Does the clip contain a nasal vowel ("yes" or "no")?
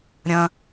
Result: yes